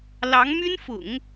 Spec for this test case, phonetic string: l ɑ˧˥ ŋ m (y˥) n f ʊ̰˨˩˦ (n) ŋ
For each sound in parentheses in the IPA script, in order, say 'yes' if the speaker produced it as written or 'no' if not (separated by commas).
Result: yes, no